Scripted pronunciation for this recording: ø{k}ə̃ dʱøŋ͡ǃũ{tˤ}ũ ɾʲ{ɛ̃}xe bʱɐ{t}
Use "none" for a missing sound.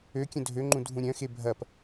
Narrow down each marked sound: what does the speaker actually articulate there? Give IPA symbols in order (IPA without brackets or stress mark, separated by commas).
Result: kʲ, dʱ, œ̃, p